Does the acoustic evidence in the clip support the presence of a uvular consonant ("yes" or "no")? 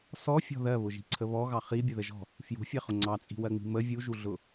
yes